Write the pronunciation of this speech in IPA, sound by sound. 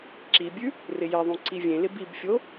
ǁibʲʉ | rɪjeðˤũ ǀivʲẽlɪ bibfʲo

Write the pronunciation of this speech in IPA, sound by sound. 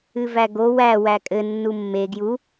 ɨvæɡo wæ wækʼɘ nːumːe ɡju

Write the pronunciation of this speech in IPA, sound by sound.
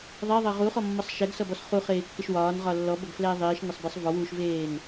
ðˤɛðˤʌ ʁuχɔmːʌsˤ ʃɛɡsʌbɔs χuχeːkːɪʃ wɒːnʁɒ lːɔbʌɡflɛː ðˤiːʃnʌsˤbɛsˤ vɔwuːʃveːn

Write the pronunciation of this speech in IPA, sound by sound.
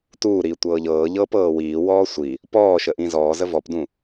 tuːɾiː tʷɤːʎɤː ʎɤːpɤːwiː wɔːsʷi | pɔːʃəʔĩ zɔːzə vɔpdũ

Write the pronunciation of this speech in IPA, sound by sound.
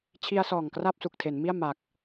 t͡ɕʰi˧a̯ sɔː˨˩ŋkra˥˩p̚su˨˩k̚ tʰe˩˦nmi˥˩a̯ ma˨˩k̚

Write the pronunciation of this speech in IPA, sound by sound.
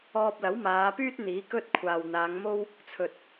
ɔː˧p̚lɐ˨˥wmaː˨˧pyː˥t̚ n̪iː˨˥kɵ˥t̚kʷʰaː˨w n̪aː˨˧ŋmo˥w | t͡sʰɵ˨t̚

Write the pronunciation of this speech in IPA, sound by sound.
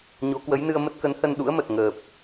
ɲo˨˦kwə˨˦jnɨ˧ə̯ mə˦˥t̚kə˨˦nhə˧n ɗṵ˧˥ə̯mə˨˩t̚ ŋəː˨˩p̚

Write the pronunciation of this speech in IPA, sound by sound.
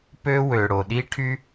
pø˥ wø˩ɽo˩ɗi˥ʈʰy˥

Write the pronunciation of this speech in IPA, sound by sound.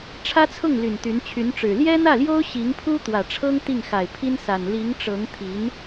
ʈ͡ʂʰä˥t͡sʰʊ˥˩ŋly˨˩n t̪y˧˥nt͡ɕʰy˧˥nʈ͡ʂɻ̩˨˩ ljɛ˥n̪ä˥˩ljo˥ʊ̯ ɕi˧˥ŋpʰu˥ t̪wä˨˩ʈ͡ʂʰɤ˥ŋ t̪i˥˩ŋxa˨˩ɪ̯pʰi˥nsa˨˩n li˧˥ŋʈ͡ʂɤ˧˥ŋt̪ʰi˧˥n

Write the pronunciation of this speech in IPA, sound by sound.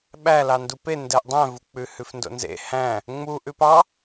ɓælɑndu pe ndɛʔdˤæ̃vuk͡pʉ hʉfndo̰nzḛ hæ̃ | ŋ͡muʔʉp ɑ

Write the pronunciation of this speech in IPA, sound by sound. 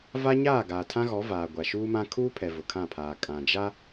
va˦ɲaː˦˨ ɡaː˨tʰã˦ɣɔ˨˦ vaː˨ɡʷa˨ʃuː˦mã˦ kʰuː˦pʰɛ˨ vʊ˨kʰã˦˨pʰaː˨ kʼã˨d͡ʒa˦

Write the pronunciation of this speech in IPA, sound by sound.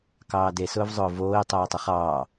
kɑːdesʊːv zˤʊːvoːi̯ tˤoːtˤəχɑː

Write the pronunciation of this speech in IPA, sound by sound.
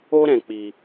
o˦ɾɛ̃˧k͡pi˧

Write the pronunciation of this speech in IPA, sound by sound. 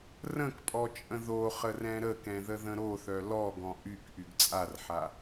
rə̃kpʼɔt͡ʃʼə̃ ðoχərɛ̃ ɾəkɛ̃ðəðə̃ ɾoθœ lɔɡɔ̃ ʔykʔyɡ t͡sʼarħa

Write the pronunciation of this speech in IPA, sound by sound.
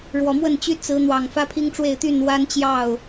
ɻwɔ˨˩mwə˥˨nt͡ɕy˦ t͡sɹ̩˨˦n̪wɑ˨˩ŋ fä˦pʰi˦ŋʈ͡ʂwe˥˨ɪ̯ t̪y˥˨n wa˦nt͡ɕjɑ˥˨ʊ̯

